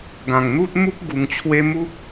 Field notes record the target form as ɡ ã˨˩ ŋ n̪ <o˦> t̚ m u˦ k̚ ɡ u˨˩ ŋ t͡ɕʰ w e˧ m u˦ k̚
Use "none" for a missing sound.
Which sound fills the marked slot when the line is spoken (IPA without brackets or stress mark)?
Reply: u˦